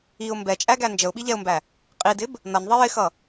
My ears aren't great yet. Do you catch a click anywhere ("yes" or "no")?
no